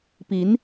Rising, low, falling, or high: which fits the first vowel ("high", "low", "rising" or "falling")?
rising